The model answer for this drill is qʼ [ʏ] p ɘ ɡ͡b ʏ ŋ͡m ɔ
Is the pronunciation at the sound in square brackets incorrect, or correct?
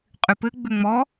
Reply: incorrect